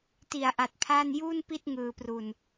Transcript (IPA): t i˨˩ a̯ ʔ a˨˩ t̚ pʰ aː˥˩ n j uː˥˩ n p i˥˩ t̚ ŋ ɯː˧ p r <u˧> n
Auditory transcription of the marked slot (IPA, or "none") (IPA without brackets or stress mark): u˧